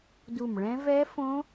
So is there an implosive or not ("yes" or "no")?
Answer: no